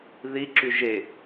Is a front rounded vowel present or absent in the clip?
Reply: present